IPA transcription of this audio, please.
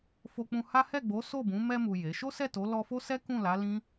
f o˧ k͡p ũ˧ h a˦ h ɛ˦˨ ɡ͡b o˨˦ s o˦˨ b ũ˨˦ m ɛ˧ m u˨ j e˨˦ ʃ o˦ s ɛ˦˨ t o˨˦ l ɔ˧ f o˦ s ɛ˦ k ũ˦˨ l a˨˦ l ĩ˦

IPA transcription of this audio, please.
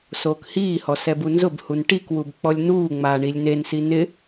s oː k h iː h ɔ s ɛ b u n z ʊ b h u n ʈ i k w u b k͡p ɔ lʲ n uː ŋ͡m aː ɳ i lʲ n e n s i n ɪ

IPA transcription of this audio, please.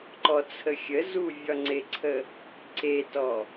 ǃ ɔ t͡sʰ ə xʲ ə z u vʲ ɒ ŋ͡ǀ e ǀʰ ə | ǀ e t ɔ

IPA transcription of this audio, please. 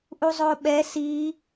ʔ u zˤ o ɓ ɛ s i

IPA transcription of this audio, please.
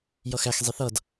j ʌ x æ x zˤ i θ ʌ d

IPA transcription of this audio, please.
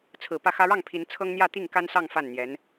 t͡sʰ ɹ̩˨˩ p ä˥˩ x ä˥ ɻ ɑ˥˩ ŋ pʰ i˧˥ n t͡sʰ ɤ˥ ŋ n̪ j ä˥˧ t̪ i˥˩ ŋ k a˥ n s ɑ˥˧ ŋ f a˥˩ n n̪ j ɛ˧˥ n

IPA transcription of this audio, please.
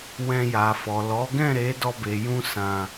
w ɛ̃˧ j a˨ f ɔ˨ l ɔ˨˦ ɡ ɛ̃˦˨ ɾ e˨˦ d ɔ˧ b e˨ j ũ˧ s ã˨

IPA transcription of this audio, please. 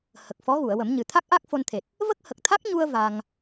h ə˨˩ k̚ f ɔ˧˥ ɣ u˨˩˨ ə̯ w ə˨˩˦ m ɲ ɨ˨˩ t̪ʰ a˦˥ k̚ ʔ a˦˥ k̚ f o˧ n t̪ʰ e˨˩ t̚ | v ə˦˥ k̚ h ə˨˩ k̚ t̪ʰ a˦˥ k̚ ɲ u˧ ə̯ v a˧ ŋ

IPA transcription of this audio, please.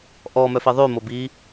ʔ ɔ m œ f i ðˤ ʉ m o b i

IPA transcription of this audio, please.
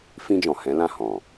f ĩ˧ d͡ʒ ɔ̃˨ h ɛ̃˨˦ l ã˦˨ h ɔ̃˨

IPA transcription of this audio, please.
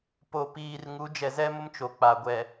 p o˨ p iː˨ r ŋ u˨˦ d͡ʒ ɛ˨ z ɛ˦ m ʊ˦ m t͡ʃ o˨ k͡p a˨ ɡʷ ɛ˨

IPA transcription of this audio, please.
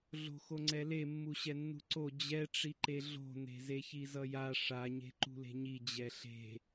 ɮ o̤ x o ŋ͡ǀ ɛ l e mː u ɕ ɛ nː ṳ ǀ o d͡ʑ ɛ ʈ͡ʂ i ǃ e ɮ o̤ n e̤ z e ç i z ʌ j a ʂ a ɲ e̤ ǃ ṳ l e̤ ɲ i d͡ʑ ɛ ɬ e̤

